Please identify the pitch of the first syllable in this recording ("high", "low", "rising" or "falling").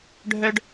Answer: high